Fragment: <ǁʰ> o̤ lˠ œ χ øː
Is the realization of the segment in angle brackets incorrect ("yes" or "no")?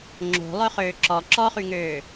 yes